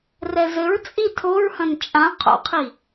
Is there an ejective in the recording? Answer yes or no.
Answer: yes